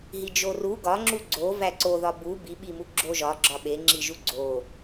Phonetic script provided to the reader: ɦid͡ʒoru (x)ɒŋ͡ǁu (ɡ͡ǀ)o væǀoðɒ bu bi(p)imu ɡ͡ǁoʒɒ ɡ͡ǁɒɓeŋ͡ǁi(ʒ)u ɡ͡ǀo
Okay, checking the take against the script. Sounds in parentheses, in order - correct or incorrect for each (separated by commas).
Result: incorrect, correct, incorrect, correct